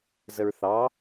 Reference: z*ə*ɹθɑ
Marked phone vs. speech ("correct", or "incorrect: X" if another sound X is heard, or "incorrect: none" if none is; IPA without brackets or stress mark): correct